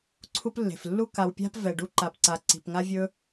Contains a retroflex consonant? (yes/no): yes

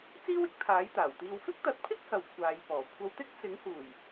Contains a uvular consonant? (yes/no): no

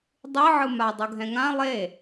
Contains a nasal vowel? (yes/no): yes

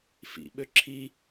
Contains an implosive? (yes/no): yes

